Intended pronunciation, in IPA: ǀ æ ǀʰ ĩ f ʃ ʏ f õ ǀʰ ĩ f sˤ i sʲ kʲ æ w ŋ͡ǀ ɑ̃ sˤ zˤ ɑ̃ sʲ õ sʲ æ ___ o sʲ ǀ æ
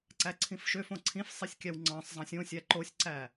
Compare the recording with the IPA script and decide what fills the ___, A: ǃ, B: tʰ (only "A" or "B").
A